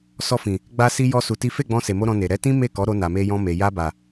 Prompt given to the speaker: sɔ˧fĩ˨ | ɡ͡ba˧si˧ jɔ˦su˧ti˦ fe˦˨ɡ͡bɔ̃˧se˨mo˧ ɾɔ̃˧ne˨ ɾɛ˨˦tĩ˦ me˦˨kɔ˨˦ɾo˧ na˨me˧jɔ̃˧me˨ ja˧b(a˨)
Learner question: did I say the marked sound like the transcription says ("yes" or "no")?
yes